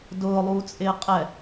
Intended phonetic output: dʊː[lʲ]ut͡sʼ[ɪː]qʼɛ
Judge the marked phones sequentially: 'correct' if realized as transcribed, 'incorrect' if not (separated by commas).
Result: incorrect, correct